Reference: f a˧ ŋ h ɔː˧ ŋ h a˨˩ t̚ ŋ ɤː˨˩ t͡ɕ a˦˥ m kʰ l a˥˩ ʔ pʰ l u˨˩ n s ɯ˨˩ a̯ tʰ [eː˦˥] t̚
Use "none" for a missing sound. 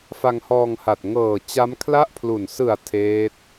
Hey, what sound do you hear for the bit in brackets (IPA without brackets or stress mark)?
eː˦˥